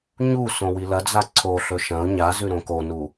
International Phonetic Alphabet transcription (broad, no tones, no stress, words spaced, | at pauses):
ɲu sõwilɐd͡za ǀʰoɬɵ ʃɐ̃ʊ̯ ɲazʉ ɾõkonu